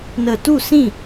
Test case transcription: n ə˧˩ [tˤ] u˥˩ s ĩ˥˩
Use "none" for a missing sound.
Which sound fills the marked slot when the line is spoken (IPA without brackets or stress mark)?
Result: t